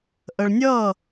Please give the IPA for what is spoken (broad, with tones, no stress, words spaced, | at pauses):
ʔə˨ɭnʲʌː˦˨